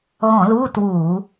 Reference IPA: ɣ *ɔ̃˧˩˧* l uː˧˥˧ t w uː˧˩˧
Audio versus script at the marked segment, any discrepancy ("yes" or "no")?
no